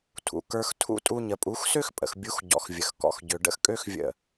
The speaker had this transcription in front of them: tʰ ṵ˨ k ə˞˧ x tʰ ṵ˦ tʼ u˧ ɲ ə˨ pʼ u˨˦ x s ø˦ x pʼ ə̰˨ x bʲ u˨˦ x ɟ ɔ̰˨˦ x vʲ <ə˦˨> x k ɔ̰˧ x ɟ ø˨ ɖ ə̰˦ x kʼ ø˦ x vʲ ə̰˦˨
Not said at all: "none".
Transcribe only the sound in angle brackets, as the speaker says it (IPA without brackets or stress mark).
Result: ə˨